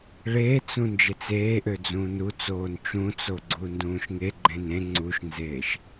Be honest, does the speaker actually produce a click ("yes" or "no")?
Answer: yes